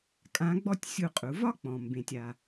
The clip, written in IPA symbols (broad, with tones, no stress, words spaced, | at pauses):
kʼã˧˥ɡ͡bɔ˥tʲsʲu˧qʼu˩˧ vɒ˥k͡pɔ̃˩ mbẽ˩tʲa˩